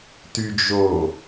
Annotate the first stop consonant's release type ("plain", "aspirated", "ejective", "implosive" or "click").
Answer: plain